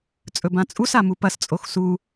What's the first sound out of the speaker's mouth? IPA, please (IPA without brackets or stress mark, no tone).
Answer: t͡sʼ